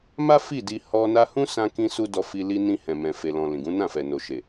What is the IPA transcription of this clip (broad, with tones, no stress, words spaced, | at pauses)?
ma˦ fi˦˨ di˧ hɔ˧na˦ hũ˦sã˧ kĩ˧su˧ dɔ˧fi˧ li˧ nĩ˧ hɛ̃˨mɛ̃˨ fe˨lɔ̃˨ lĩ˨ɡũ˨˦nã˦˨fɛ˨ no˨ʃe˨